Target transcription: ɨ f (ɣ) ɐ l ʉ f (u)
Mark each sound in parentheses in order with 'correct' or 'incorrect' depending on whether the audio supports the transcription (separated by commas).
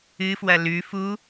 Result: incorrect, correct